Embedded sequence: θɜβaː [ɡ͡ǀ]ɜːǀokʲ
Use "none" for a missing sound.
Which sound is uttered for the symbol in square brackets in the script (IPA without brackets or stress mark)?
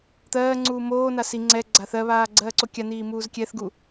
ɡ͡ǀ